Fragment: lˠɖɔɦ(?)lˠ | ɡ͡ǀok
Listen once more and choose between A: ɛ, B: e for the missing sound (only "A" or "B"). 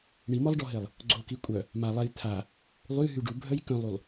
B